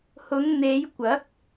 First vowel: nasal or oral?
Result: oral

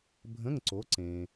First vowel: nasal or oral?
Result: nasal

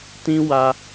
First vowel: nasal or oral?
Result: nasal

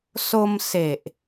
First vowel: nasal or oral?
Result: oral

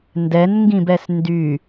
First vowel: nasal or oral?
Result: oral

